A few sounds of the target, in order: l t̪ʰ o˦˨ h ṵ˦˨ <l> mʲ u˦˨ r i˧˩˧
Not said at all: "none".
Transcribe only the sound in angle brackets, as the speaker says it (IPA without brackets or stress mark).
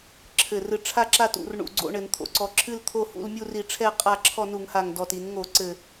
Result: l